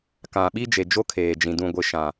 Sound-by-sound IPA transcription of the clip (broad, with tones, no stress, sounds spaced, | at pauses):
k ã˨ ɓ i˦ d͡ʒ e˨ d͡ʒ o˦ kʰ eː˨ d͡ʒ ĩ˨ d ũ˦ ɡʷ ɪ˦ ʃ ã˨